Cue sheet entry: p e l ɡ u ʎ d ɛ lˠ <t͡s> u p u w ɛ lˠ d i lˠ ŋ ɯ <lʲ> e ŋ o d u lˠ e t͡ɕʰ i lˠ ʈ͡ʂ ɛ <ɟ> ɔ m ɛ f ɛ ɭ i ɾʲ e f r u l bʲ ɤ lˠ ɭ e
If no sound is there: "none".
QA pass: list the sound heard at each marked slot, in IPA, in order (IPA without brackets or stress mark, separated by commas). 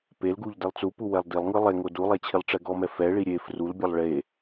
t͡s, lˠ, ɡ